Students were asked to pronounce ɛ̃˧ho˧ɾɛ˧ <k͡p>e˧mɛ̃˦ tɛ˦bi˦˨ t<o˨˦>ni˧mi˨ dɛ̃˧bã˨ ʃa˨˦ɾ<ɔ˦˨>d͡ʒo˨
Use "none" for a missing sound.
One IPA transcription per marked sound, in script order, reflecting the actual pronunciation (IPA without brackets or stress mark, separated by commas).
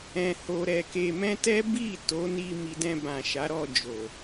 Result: k, o˨˦, ɔ˦˨